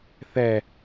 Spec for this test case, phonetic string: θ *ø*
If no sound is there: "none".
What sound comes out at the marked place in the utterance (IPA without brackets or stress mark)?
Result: ɛ